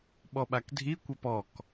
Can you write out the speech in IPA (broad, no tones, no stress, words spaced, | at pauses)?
ɓɔɓakdʱi kʷɛpɔk